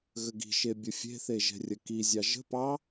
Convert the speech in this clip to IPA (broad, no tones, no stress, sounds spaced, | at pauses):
ɣ ə ɡ i̤ ʃ e bʲ ə fʲ e̤ θ e ʒ ɛ̤ rʲ ə k i zʲ ɑ ʒ ə̤ p ɑ